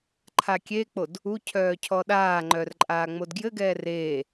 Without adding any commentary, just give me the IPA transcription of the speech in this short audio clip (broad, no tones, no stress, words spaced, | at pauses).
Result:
ǃʰakʲek͡pod | ucʰœː cʰɔɗaːŋ͡ǃœr ǃʼaːŋ͡modɡjɘɡɛː reː